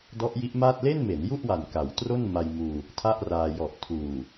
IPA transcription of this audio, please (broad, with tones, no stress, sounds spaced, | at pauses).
d ɔ˦˥ ʔ j i˦˥ ʔ m aː˥˩ t̚ l e˥˩ n m e˩˦ n j u˥˩ ʔ w a˨˩ n k a˩˦ w t r o˥˩ n m a˧ j m uː˧ | tʰ a˥˩ ʔ r aː˧ j ɔ˨˩ ʔ tʰ uː˨˩